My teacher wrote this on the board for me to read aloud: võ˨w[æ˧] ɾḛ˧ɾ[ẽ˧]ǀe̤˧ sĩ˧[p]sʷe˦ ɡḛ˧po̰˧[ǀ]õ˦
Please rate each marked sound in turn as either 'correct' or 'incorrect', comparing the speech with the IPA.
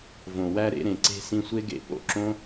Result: correct, incorrect: ẽ˨, incorrect: none, incorrect: ǁ

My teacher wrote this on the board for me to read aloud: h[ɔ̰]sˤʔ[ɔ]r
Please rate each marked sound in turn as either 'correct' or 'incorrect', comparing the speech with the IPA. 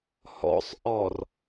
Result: correct, correct

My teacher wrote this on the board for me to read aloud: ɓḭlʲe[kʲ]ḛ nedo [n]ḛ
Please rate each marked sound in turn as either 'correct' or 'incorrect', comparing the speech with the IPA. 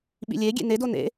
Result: incorrect: ɡʲ, correct

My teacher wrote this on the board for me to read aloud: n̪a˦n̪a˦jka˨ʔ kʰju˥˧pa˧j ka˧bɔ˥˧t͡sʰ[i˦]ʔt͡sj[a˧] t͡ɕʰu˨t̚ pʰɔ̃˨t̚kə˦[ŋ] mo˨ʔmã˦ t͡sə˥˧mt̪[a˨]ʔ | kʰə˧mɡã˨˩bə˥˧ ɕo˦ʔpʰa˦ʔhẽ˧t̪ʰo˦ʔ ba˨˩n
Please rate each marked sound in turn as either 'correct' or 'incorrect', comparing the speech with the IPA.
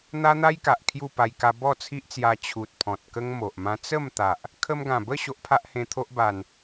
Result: correct, correct, correct, correct

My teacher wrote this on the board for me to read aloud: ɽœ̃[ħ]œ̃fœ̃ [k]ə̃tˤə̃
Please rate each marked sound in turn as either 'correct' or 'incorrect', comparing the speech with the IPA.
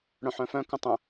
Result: correct, correct

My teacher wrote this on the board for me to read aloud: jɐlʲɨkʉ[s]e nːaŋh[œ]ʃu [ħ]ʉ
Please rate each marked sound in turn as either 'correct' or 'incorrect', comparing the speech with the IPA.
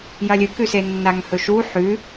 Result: correct, incorrect: ɵ, correct

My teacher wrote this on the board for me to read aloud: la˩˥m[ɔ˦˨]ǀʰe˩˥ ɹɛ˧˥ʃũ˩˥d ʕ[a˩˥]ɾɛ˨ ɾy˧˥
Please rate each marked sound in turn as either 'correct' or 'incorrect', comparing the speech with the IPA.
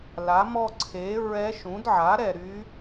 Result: correct, correct

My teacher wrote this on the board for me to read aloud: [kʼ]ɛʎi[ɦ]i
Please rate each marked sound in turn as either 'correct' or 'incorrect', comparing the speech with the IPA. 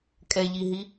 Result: correct, correct

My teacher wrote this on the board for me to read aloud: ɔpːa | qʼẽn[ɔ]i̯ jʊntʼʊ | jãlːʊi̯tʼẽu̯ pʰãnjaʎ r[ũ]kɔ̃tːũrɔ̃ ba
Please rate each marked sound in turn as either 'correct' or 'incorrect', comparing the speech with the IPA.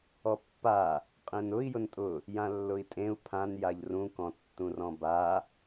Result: incorrect: ʊ, correct

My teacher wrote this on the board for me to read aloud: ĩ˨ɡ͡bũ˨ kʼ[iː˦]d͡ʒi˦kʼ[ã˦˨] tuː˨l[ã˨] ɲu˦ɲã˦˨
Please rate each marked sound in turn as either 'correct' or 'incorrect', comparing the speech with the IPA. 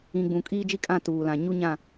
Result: correct, correct, correct

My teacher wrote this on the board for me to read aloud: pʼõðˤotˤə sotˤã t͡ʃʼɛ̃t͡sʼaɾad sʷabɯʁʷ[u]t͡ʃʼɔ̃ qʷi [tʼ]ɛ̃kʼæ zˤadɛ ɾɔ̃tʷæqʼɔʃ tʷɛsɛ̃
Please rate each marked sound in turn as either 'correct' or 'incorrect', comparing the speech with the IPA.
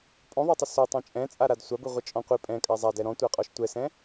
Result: incorrect: ɯ, incorrect: pʼ

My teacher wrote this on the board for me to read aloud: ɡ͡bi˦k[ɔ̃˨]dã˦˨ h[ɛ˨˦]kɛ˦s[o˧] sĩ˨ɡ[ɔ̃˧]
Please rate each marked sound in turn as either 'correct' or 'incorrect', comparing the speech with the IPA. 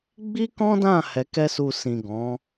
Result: incorrect: ɔ̃˦, correct, incorrect: u˧, incorrect: ɔ̃˨˦

